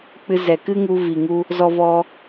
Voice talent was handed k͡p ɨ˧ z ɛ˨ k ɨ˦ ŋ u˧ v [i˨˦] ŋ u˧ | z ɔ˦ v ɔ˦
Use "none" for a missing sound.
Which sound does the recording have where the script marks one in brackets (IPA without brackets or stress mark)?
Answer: i˨